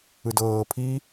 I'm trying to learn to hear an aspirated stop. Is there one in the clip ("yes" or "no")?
yes